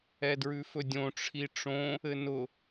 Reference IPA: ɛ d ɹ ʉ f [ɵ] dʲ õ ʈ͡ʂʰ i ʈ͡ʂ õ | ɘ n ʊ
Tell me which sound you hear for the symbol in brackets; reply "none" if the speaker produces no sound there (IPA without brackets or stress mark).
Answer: ɵ